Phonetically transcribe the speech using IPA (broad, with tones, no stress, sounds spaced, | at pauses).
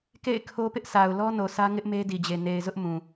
k ḛ˦˨ ɪ̯ kʰ o˦ p ɪ˦ ʔ s a˨ ʊ̯ l ɔ˦ n o˨ s ä˦ ŋ ɪ˦ ʔ m e˦ d i˨ d͡ʑ e˨ n e˨ ɪ̯ z ʊ˦ ʔ m ũ˨